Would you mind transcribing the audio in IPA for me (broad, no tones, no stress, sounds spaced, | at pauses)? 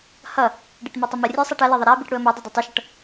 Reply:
h ʌ | ɖ i ʈ m æ tˤ ɨ m ʌ rʲ e sˤ æ ʈ ɐ l e ðˤ ɐ ɾ æ b i ʈ ɽ u ə̯ m e dˤ e dˤ æ tˤ ɨ ʃ ʌ ʈ